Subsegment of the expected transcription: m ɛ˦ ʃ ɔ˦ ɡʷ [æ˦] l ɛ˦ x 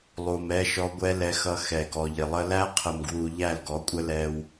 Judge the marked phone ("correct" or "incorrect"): incorrect